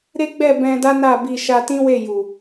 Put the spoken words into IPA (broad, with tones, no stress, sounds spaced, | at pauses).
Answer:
ɾ e˦ ɡ͡b ɛ˦˨ b ɛ̃˧ d a˦ n a˦˨ b i˧ ʃ a˧ t ĩ˦ w e˦˨ j u˨